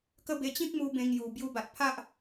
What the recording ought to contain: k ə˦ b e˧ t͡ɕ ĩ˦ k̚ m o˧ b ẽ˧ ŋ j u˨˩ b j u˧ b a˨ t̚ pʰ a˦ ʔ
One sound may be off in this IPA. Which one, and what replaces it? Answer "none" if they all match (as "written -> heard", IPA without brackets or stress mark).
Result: o˧ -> u˧